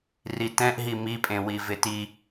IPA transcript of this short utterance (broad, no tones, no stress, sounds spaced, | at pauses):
r i t ɛ̃ ʔ ɦ i m i pʼ ẽ w i v ɪ t i